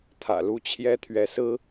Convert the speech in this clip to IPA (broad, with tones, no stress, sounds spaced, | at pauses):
t̪ʰ ä̰˨˩ l u˥ t͡ɕʰ j ɛ˥ t̪ʰ ɥ ɛ˧˥ s ɹ̩˥